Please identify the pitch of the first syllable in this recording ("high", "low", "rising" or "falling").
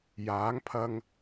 rising